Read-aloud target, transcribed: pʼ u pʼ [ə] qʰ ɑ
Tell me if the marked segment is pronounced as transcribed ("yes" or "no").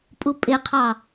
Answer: no